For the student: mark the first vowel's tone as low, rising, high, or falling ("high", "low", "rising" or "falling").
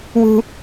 high